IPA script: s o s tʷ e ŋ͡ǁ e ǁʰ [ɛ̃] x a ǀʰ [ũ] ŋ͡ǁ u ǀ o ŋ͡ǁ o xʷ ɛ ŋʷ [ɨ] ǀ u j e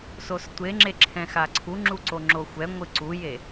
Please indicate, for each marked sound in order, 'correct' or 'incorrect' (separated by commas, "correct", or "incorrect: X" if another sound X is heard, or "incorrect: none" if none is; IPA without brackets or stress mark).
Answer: correct, incorrect: u, correct